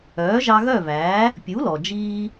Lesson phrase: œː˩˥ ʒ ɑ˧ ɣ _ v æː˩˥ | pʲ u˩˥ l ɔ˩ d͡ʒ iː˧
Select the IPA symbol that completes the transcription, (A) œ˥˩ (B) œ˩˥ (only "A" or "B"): A